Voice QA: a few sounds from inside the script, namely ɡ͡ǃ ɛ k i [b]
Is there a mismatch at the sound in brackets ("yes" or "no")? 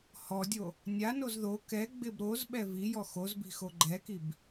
no